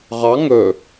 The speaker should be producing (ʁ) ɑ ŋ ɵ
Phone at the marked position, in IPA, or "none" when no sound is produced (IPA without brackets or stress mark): ʁ